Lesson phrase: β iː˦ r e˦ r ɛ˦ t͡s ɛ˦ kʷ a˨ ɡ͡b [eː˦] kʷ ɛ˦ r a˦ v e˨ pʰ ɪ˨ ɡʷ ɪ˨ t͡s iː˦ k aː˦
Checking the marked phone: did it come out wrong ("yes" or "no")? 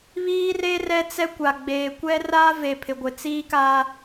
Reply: yes